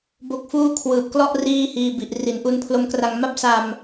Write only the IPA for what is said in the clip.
bo˦˥k̚fuː˥˩ kʰwɯː˨˩p̚klɔ˥˩ʔ riː˥˩hiː˧bi˨˩ʔ ri˩˦nʔu˧npʰlo˦˥mkra˧ŋ ma˥˩p̚sa˧m

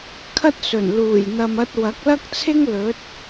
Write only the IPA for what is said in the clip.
kʰɐ˥t̚sɵ˨˩n luː˨˩j n̪ɐ˨mɐ˧t̚ wɐ˨˥k̚lɐ˥k̚t͡sʰɪ˥ŋ lɵ˨˥t̚

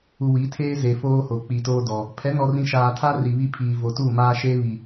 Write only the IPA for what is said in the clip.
u˨wi˨˦tʰeː˦ ze˨foː˦ho˨ k͡pi˨toː˦ dɔ˨ | pʰɛ˨˦nɔ˨rĩ˨ ʃaː˨tʰa˦ ri˨βi˦pʰiː˨ vo˨tu˦˨maː˦ʃe˦ βi˨

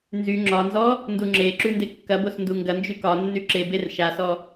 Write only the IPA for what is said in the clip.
nzy ŋ͡ǁɒnzɔ | nduŋ͡ǁeǁʉ ndekːɐbos nduŋɡɐnd͡ʒy kɒ nːyǁeber ʃasɔ

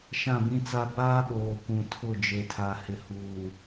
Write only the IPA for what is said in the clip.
ʃã˦˨bĩ˦t͡sa˦ baː˦ɓoː˨ kʷũ˨ tʰʊ˦˨ d͡ʒe˨tʰa˨ hɪ˨huː˨

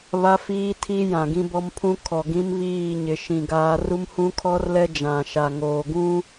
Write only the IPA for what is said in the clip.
βa˦fiː˦tʰi˦ jã˨ɡĩ˦bɔ˦mpʰũ˦ kʰɔ˨ɡĩ˦mβiː˦˨ɲɪ˨ ʃĩ˨ɡaː˦ ru˦mhũ˦kʰɔ˦rlɛ˦ d͡ʒã˨ʃa˨ ŋoː˨ɡũ˦

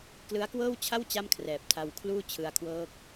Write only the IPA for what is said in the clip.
klɯ˦˥a̯kwɤː˥˩wt͡ɕʰa˥˩w t͡ɕa˥˩mkʰrɛː˨˩p̚ tʰa˧wkʰluː˥˩ t͡ɕʰɯ˧a̯kʰwɤː˦˥k̚

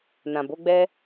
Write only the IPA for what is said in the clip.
nã˨bo˨˦ɡ͡bɛ˦

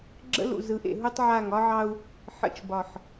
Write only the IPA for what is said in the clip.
ɡ͡ǁə̰˦lṵ˨ zɯ˨ʔḛ˨ ɦu˦tˤʕa˦˨ŋ ɒ˦ʕɑ˦u̯ | ħə̰˨t͡ʃbɒ˨ħ

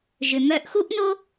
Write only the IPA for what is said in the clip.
ʒʏ˩mœ˧ʔxu˥ʔ no˥

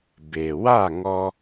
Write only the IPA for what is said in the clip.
be˩ wa˥˩ŋɔ˧

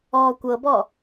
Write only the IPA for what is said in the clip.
ɔːkʷɤbɔ

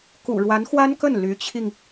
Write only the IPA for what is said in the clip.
kṵ˨˩ɻwa˧˥nxwa˥nkə˥˩n ly˧˥t͡ɕʰi˧ŋ

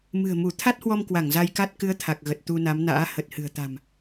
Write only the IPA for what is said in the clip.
mɨ̤˨˩ə̯mu˧˩ t̪ʰa˦˥t̚hwɔ˧mkwa˧˩ŋ za˧jka˦˥t̚ kɨ˨˦ə̯t̪ʰa˨˩k̚ɣə˨˩t̚ t̪u˧na˨˦mna̰ː˧˥ hə˨˩t̚hɨ̤˨˩ə̯t̪a̤˨˩m

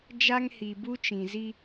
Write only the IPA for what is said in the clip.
d͡ʒa˦ŋhi˨bu˦t͡ʃĩ˨ zi˦

